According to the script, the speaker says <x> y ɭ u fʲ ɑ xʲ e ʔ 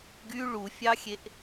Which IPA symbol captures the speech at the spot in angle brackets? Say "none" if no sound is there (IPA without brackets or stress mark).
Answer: ɡ